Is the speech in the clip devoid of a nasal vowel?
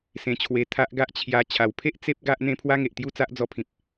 no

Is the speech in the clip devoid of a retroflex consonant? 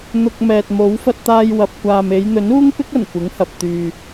yes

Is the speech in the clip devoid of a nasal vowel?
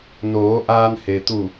yes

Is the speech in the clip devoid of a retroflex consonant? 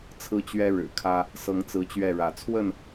no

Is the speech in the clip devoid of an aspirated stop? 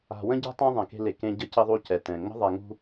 yes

